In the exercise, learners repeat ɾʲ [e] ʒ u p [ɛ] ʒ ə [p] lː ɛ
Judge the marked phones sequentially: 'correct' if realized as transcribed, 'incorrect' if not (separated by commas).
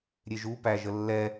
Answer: correct, incorrect, incorrect